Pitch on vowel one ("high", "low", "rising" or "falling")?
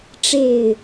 falling